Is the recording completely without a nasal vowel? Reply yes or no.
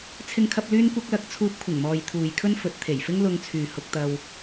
yes